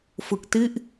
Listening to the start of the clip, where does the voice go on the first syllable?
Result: low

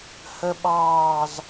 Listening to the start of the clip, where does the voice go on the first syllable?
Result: low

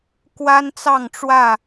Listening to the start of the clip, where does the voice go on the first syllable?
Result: high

